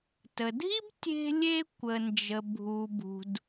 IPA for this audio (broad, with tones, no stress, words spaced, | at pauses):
tə˩dʱi˥b tʲe̤˧lʲe˧ kʷə˩nd͡ʒə˩ bʱu˩bṳ˩d